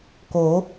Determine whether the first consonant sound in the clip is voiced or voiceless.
voiceless